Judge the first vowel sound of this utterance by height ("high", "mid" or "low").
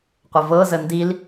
mid